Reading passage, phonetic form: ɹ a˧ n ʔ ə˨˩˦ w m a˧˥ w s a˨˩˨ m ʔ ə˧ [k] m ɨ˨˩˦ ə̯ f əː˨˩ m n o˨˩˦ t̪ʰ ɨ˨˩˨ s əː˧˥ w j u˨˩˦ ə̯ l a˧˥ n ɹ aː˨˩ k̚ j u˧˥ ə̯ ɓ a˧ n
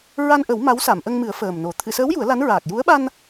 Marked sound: incorrect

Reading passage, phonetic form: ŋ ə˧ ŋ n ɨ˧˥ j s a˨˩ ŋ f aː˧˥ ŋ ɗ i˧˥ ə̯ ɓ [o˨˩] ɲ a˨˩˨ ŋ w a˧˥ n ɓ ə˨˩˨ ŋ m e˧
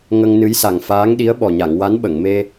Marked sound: incorrect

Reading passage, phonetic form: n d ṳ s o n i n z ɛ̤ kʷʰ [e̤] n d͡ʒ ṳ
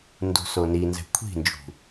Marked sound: incorrect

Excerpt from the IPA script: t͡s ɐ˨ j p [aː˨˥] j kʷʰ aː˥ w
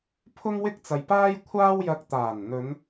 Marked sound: incorrect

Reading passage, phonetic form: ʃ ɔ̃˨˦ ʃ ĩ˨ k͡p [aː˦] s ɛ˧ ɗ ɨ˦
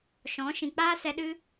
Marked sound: correct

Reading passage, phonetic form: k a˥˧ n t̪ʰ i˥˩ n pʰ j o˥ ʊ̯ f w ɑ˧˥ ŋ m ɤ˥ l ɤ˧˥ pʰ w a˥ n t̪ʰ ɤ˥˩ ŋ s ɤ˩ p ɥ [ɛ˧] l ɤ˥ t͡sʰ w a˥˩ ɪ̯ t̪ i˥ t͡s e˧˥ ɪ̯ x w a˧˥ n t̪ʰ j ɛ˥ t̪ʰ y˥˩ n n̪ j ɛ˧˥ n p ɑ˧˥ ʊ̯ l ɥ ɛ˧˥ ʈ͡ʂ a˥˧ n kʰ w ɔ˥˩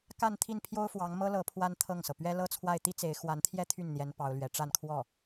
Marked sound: incorrect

